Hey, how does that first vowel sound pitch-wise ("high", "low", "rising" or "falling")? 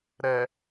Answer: low